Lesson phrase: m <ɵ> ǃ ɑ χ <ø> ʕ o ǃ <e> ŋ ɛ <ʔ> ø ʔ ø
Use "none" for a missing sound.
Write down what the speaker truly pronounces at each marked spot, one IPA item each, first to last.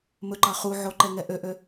ɵ, u, ɛ, ʔ

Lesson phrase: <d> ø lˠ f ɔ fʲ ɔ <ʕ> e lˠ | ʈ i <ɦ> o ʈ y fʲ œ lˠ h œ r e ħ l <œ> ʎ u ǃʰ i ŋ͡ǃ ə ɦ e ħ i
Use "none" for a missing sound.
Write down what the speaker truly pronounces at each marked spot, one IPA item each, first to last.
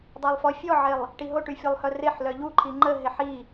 dˤ, ʕ, ɦ, œ

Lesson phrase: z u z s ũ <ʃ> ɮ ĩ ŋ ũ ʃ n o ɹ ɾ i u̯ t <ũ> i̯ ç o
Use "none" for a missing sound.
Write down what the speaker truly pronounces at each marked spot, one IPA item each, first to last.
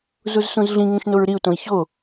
z, õ

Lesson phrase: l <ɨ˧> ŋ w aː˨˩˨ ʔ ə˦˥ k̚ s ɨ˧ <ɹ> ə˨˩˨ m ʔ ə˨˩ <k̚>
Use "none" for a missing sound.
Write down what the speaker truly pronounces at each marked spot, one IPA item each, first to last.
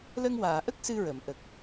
ə˧, ɹ, k̚

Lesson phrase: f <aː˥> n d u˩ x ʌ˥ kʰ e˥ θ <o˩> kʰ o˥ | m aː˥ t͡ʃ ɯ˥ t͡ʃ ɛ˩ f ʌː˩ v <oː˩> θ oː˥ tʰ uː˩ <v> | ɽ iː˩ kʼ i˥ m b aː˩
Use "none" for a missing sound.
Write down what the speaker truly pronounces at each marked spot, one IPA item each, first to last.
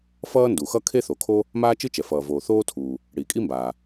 ʌː˥, o˩, oː˩, none

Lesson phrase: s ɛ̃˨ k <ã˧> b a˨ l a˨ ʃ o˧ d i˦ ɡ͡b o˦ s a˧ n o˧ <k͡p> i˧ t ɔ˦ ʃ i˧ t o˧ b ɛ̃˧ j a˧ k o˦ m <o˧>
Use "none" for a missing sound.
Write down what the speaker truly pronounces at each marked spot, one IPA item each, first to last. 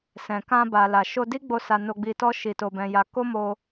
ã˧, ɡ͡b, o˧

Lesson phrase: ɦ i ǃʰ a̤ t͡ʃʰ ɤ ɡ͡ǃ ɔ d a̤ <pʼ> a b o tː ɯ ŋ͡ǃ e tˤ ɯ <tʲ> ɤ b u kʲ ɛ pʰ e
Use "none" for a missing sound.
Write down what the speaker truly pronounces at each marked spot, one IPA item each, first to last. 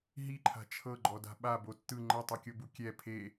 ɓ, kʲ

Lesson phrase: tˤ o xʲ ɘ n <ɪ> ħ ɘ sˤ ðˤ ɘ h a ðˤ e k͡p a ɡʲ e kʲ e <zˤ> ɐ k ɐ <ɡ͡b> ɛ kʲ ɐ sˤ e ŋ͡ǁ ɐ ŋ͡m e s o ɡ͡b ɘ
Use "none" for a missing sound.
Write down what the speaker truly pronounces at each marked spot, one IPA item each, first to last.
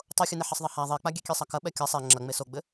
ɛ, sˤ, ɓ

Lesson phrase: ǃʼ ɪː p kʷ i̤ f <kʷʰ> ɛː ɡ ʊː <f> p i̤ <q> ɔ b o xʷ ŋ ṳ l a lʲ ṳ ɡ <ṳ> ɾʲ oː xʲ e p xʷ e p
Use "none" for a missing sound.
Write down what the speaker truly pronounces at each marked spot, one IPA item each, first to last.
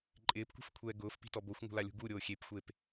kʷʰ, f, t, u

